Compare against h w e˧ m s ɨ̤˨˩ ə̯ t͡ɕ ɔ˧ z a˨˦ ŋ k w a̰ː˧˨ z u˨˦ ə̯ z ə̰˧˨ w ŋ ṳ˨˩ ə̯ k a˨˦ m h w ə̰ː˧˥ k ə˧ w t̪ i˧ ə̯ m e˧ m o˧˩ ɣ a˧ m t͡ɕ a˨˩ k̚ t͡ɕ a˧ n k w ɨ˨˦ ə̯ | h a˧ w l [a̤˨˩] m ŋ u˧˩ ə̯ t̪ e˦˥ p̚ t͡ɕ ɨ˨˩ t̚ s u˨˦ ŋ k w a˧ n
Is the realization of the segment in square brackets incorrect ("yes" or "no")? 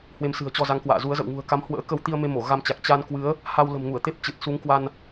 yes